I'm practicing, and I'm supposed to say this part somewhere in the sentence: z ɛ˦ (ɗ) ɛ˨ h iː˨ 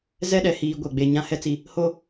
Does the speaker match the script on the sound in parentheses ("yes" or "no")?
yes